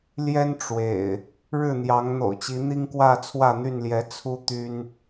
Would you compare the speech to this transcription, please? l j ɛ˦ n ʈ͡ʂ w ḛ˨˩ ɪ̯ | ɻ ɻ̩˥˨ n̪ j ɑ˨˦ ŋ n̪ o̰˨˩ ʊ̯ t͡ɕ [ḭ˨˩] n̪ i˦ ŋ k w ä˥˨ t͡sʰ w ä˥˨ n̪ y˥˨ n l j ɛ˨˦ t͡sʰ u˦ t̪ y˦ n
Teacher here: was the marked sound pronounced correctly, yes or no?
no